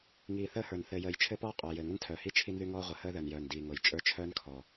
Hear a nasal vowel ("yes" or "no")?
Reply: no